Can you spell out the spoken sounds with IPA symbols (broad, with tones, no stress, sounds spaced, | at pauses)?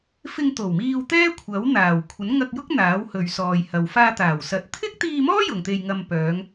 f ɪ˧ ŋ t̪ o˨˩ w m iː˧ w t̪ ɛː˥ kʷʰ ɐ˨˥ w n̪ aː˨˩ w kʷʰ ɐ˨˥ n ŋ ɐ˧ k̚ j ʊ˥ k̚ n̪ aː˨˥ w h ɵ˨ ɥ s ɔː˨ j h ɐ˨ w f aː˧ t̪ aː˨˩ w s ɐ˨˥ t̚ t̪ʰ ɪ˥ k̚ t̪ iː˧ m ɔː˥ j ʊ˨ ŋ t̪ e˧ j ŋ ɐ˧ m p œː˨˧ ŋ